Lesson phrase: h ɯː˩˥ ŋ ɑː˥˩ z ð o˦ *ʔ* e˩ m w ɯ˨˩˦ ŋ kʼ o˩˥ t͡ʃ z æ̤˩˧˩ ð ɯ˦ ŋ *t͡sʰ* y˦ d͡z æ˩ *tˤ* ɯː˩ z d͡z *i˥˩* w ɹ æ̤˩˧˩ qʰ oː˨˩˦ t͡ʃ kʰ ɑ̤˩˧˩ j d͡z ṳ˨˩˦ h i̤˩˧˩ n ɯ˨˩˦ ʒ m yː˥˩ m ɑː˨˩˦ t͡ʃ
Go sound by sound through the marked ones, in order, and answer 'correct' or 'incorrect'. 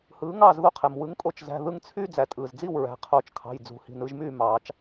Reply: incorrect, correct, incorrect, correct

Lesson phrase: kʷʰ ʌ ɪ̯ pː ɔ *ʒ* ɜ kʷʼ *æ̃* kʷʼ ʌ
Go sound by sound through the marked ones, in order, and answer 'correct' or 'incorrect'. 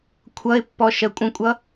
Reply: incorrect, incorrect

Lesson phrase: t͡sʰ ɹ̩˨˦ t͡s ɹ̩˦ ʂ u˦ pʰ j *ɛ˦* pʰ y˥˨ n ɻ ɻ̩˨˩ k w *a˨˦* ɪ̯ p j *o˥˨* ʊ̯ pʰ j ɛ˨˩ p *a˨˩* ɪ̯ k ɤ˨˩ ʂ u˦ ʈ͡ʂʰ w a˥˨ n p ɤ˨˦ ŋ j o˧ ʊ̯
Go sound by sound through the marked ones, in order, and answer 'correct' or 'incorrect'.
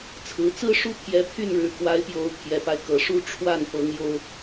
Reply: incorrect, correct, incorrect, incorrect

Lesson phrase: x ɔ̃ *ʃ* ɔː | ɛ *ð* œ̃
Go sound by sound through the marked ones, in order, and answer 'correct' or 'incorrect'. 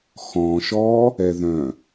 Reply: correct, correct

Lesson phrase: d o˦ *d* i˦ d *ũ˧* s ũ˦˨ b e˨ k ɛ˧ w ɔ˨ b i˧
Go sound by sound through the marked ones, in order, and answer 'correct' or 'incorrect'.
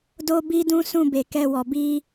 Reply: incorrect, incorrect

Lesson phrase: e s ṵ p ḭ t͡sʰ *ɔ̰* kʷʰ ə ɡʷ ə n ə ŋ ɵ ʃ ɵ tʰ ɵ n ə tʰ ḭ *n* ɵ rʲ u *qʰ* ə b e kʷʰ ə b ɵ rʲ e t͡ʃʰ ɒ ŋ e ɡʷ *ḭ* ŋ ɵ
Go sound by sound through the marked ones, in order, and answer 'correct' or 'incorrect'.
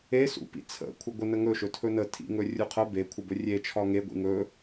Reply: incorrect, incorrect, correct, correct

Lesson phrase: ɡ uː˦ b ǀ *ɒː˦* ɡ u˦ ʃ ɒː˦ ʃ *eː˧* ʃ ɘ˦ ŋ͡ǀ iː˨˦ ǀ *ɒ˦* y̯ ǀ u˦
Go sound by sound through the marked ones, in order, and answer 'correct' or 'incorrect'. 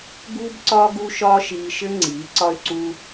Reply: correct, incorrect, correct

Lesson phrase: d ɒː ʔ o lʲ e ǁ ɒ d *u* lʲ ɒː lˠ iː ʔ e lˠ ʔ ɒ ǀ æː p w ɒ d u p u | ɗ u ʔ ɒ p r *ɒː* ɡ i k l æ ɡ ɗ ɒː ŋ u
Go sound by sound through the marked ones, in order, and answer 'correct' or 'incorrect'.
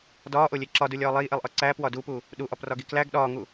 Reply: correct, incorrect

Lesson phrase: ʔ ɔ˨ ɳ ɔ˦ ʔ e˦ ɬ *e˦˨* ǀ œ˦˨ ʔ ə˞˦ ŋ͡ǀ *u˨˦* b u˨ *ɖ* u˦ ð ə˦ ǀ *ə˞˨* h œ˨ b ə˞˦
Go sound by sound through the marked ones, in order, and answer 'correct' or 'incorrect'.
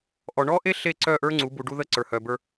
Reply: correct, correct, correct, correct

